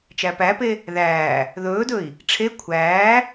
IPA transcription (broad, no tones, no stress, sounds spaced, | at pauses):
t͡ʃ æ p æ p e | ð æː | ð ɵː d ɵ i̯ | ʈ͡ʂʰ e kʷʰ æː